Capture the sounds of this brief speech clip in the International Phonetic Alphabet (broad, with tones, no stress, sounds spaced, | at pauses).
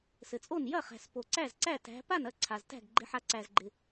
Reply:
s ɘ˩ t͡sʼ o˥˩ n j ɐ˥˩ χ æ̤˩ s p o˩ ǀ æ˥˩ z ǀ æ˥˩ t æ̤˨˦ p a˥˩ n ɐ˥˩ ǀʰ a˩ z t æ̤˥˩ ɡ ɡ͡ǃ ɪ˨˦ ħ a˨˦ ǀ æ˩ z ɡ͡ǃ ɪ˩